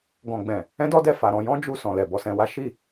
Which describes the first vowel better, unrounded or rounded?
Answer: rounded